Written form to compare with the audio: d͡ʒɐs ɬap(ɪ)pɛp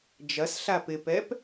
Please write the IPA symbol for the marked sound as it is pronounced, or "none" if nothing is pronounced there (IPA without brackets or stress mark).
ɪ